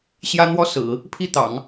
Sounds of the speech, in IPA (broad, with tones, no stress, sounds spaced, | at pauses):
ɕ j ä˥ n̪ w ɔ˥ s ɹ̩˨˩˦ | pʰ i˥˩ t̪ ɑ̰˨˩˦ ŋ